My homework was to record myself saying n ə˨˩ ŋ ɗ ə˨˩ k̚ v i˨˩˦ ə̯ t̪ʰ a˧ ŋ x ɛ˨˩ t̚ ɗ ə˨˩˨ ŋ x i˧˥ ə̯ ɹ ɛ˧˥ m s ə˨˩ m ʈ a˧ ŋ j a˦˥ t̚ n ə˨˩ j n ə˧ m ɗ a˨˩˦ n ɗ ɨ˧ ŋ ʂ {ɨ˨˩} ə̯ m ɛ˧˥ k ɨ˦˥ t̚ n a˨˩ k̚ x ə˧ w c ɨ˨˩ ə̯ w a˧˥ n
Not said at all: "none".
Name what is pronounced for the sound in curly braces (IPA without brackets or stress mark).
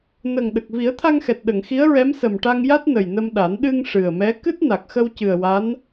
ɨ˨˩